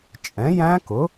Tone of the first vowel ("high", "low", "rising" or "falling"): rising